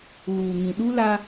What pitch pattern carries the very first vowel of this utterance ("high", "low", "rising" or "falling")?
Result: low